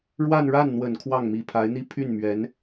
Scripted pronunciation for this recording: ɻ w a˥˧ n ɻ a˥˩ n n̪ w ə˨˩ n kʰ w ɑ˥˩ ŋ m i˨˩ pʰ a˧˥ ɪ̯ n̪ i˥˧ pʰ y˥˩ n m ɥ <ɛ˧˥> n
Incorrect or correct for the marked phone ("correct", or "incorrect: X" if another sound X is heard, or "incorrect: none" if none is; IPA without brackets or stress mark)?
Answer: correct